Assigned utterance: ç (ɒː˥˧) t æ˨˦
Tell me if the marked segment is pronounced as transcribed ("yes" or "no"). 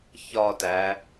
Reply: yes